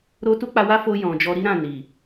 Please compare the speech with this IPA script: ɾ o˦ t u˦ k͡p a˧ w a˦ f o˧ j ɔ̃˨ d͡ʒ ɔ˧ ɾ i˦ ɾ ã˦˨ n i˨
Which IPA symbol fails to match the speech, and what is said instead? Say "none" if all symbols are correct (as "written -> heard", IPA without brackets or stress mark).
none